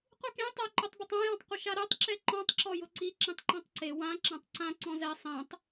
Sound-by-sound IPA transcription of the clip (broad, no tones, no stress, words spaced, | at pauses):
qʷikẽ tˤʊ ǃʊtˤbʊtˤã jɔ̃tˤqʷɪʃaɾɛtˤ ǁɛǃɔ̃tˤ ǁɔjʊǀi ǁĩtˤǃãtˤǀe wã ǁãtˤǀã ǀɔ̃zɛ sˤẽtˤ